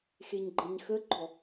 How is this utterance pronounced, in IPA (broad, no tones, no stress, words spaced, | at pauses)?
xeɲɡ͡ǃəɲxəɡ͡ǃɔ